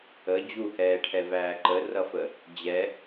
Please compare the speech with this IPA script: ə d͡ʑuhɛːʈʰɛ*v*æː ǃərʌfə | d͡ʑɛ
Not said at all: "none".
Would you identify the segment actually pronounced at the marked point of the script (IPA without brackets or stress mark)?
v